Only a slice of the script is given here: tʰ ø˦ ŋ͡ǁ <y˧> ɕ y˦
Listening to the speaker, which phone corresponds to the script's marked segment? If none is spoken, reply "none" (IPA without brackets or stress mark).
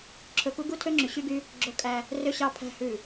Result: y˨